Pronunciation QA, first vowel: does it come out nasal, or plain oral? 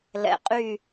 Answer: oral